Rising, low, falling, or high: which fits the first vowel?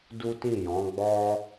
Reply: high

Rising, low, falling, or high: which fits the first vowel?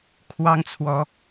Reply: high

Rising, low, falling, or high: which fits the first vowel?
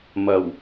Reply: low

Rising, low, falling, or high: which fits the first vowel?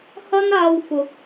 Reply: high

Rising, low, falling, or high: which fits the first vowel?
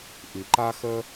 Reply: low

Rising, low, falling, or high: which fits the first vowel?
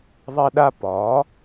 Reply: high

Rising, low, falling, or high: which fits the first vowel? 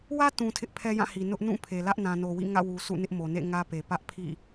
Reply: high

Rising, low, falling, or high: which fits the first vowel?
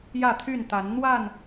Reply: falling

